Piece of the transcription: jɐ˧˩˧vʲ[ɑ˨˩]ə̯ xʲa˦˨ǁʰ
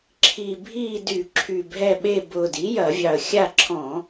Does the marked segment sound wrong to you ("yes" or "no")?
no